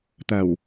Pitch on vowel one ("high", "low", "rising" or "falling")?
low